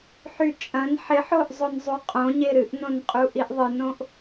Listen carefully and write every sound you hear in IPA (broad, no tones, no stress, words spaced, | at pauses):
ħyt͡ʃʼɐ̃n ħɪħoʔ zˤonzˤuqʼõ ɲeɾɨʔnõnqʼu ʔiʔðˤɨnõʔ